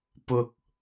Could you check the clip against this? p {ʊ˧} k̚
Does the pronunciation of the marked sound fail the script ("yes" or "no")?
no